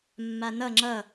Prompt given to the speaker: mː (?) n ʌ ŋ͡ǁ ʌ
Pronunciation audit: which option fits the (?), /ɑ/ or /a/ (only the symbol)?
a